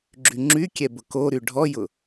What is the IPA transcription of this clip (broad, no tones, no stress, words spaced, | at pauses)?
ɡ͡ǁyŋ͡ǁykʲɛ bʊkoɾy ɖʱɔjʊ